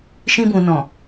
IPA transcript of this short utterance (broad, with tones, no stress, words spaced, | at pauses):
ʃĩ˧bũ˨nɔ̃˨